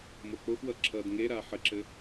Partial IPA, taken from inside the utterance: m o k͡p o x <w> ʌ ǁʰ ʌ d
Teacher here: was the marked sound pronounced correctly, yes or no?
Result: yes